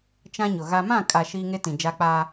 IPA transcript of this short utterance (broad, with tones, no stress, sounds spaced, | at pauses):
t͡ʃ ã˦ ɲ ʊ˨ ɣ a˦ m ã˦˨ kʼ a˨ ʃ iː˦ ŋ e˦ t ĩ˨ d͡ʒ a˦ k͡p aː˦